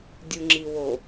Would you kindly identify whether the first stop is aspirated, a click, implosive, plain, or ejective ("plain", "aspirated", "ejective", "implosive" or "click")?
plain